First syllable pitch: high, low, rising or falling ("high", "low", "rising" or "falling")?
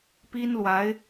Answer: high